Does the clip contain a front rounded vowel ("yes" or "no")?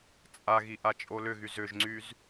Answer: yes